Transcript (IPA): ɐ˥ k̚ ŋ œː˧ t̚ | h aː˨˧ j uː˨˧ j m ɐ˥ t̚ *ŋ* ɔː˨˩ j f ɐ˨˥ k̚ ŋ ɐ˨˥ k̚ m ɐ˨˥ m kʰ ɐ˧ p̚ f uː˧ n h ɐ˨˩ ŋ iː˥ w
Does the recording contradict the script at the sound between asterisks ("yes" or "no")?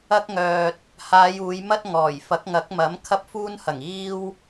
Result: no